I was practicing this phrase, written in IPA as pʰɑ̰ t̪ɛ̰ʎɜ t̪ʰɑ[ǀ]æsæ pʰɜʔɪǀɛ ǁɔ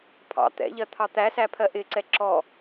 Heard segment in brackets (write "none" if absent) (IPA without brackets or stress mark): t̪